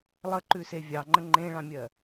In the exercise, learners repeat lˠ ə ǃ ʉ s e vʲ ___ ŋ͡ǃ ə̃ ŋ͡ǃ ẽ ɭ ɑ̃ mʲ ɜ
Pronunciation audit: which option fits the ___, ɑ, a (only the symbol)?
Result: ɑ